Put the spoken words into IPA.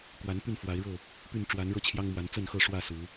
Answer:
k w a˨˦ n p y˥˨ n f w a˨˦ ɪ̯ ɻ ɤ˥˨ | p y˥˨ n ʈ͡ʂ w a˨˦ n ɻ ɤ˦ t͡ɕʰ j ɑ˦ ŋ m w a˨˦ n t͡s ə˥˨ n x ɤ˥˨ ʂ w ä˥˨ s u˨˦

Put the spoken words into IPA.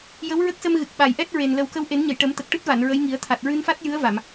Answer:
j ə˧˥ w ɹ ə˦˥ k̚ s ə˧ m ɣ ɨ˨˩ k̚ ɓ a˨˩ j ʔ ɛ˦˥ t̚ ɹ e˨˩ n l ə˨˩ w k ə˧ w ʔ e˨˩˦ n ɲ ə˨˩˨ j ʈ ə˨˩˦ m t̪ ə˨˩ k̚ ʈ ɨ˦˥ t̚ v a˨˩˨ n ɹ ə˧˥ j ŋ i˨˩˦ ə̯ t̪ʰ a˨˩ t̚ ɹ ɨ˧ n f a˦˥ t̚ j ɨ˧˥ ə̯ v a˨˩˨ m

